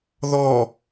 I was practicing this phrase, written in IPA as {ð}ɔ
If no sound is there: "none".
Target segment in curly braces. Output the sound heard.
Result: ð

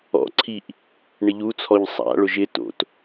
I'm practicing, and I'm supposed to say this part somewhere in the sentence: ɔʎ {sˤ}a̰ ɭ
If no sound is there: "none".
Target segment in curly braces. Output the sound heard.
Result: sˤ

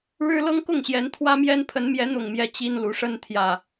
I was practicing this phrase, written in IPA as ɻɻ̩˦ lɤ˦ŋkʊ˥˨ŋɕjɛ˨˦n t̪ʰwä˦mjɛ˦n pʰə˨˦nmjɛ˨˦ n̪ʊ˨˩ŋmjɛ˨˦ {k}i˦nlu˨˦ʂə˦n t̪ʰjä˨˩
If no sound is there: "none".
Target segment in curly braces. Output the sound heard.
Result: t͡ɕ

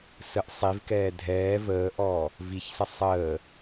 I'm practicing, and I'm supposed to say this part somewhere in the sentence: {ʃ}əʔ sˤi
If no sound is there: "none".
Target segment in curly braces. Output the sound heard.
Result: s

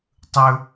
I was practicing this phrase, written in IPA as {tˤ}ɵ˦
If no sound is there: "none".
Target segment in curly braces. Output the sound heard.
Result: tˤ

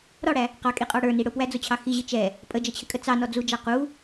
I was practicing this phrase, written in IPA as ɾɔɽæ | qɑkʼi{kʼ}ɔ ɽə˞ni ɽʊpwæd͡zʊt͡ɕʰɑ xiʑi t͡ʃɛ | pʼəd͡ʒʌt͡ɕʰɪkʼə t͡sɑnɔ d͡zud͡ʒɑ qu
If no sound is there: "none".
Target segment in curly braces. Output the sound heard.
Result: qʼ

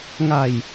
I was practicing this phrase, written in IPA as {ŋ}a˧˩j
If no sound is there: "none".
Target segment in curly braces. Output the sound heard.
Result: ŋ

